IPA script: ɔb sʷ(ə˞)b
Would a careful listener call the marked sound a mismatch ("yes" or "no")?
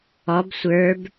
no